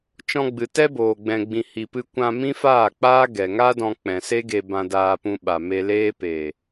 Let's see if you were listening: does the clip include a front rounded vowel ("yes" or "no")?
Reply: no